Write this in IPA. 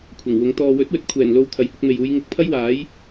kʷʰ ɐ˨˩ ŋ w ʊ˨˥ ŋ t̪ ɔː˨ w ɵ˨˥ t̚ w ɵ˨ t̚ kʷʰ ɛː˨˩ n l o˨˧ w t̪ʰ ɐ˨ j h ʊ˨˥ k̚ m e˨ j uː˨˧ j ŋ ɪ˨˥ k̚ pʰ ɐ˥ j w aː˨˥ j

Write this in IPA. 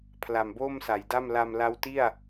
pʰ l a˨˩ m b o˥˩ m s a˩˦ j d a˥˩ m l a˧ m l a˦˥ w t i˥˩ a̯

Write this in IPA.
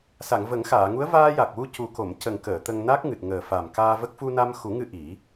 s a˨˩˨ ŋ v ə˨˩˦ ŋ x aː˨˩˨ ŋ u˧˥ ə̯ v aː˧ j a˨˩ k̚ w u˧ c u˨˩ k o˨˩˨ m c ə˨˩ ŋ k əː˨˩˨ t̪ ə˧ ŋ n a˦˥ k̚ ŋ ɨ˨˩ t̚ ŋ əː˨˩ f a˨˩ m k aː˧ v ə˦˥ k̚ f u˧ n a˧ m x u˨˩˦ ŋ ɨ˧ ʔ i˨˩˦

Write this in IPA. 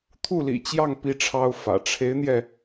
t̪ʰ u˥˩ l ḭ˨˩ t͡ɕ j ɑ˥˩ ŋ p i˥ ʈ͡ʂʰ ɑ˥ ʊ̯ f ä̰˨˩ ʈ͡ʂʰ e˧˥ ɪ̯ n̪ j ɛ˧

